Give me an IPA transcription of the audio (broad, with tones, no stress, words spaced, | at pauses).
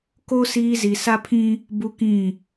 ko˦ siː˦zi˨ sa˦pʰĩ˦ | bu˦kĩ˦˨